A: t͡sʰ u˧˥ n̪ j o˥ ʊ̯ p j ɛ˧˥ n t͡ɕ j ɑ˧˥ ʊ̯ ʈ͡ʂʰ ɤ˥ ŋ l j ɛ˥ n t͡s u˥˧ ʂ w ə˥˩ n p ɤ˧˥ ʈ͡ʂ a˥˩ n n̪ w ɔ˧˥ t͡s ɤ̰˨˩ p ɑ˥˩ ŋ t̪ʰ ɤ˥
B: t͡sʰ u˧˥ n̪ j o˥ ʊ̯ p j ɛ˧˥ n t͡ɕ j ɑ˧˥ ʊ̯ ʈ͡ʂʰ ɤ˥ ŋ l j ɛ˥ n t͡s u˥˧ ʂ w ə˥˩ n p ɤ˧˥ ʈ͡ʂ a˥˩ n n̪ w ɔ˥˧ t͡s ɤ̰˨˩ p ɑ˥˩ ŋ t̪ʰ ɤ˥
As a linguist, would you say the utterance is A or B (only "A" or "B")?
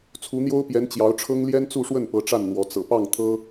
A